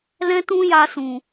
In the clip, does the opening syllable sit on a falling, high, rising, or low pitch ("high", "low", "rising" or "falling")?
high